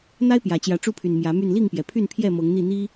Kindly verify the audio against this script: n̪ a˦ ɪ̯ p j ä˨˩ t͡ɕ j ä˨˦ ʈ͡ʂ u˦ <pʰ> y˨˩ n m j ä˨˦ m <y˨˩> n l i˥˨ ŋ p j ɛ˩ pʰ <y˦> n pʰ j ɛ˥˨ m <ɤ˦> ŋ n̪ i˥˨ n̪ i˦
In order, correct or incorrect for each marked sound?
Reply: correct, incorrect, incorrect, incorrect

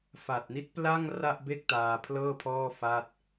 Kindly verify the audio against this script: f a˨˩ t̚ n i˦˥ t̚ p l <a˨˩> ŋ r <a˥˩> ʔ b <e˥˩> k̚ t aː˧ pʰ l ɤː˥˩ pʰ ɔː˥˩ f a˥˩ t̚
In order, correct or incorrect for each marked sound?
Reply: incorrect, correct, correct

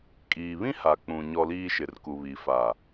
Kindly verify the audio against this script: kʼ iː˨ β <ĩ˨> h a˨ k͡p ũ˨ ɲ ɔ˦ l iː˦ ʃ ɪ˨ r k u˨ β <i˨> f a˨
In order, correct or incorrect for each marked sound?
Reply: incorrect, correct

